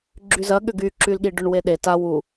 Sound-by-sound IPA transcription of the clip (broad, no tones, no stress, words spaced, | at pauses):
ɡ͡ǁyzɐ ɠʏɡy ǁylɠiɖʏɳ weɗe ta wu